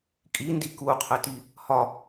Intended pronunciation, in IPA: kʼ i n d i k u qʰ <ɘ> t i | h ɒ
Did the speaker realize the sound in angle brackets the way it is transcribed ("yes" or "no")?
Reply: yes